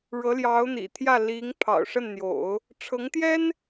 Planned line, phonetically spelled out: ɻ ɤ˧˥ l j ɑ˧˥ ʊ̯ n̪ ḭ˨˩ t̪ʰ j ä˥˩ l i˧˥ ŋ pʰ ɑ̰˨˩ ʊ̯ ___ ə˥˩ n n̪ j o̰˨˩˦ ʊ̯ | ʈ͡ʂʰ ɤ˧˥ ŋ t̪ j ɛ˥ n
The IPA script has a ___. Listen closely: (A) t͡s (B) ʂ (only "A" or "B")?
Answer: B